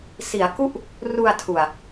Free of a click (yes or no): yes